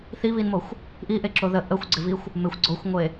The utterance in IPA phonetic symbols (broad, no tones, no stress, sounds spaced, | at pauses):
θ i β i n m o xʷ | ʔ i ʔ e ǁ o ð ə ʔ ə xʷ ɡ͡ǀ ɪ v i xʷ | m ɪ xʷ ɡ͡ǀ o xʷ ŋʷ e